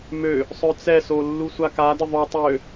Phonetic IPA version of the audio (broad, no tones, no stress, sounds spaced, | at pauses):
m ø | sˤ œ t͡s ɛ s o lː u sʷ a k a d ə ðˤ œ tˤ ø